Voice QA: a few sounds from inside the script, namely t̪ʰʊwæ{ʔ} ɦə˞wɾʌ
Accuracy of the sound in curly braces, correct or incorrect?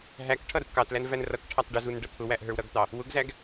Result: correct